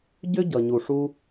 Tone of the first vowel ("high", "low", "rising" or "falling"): high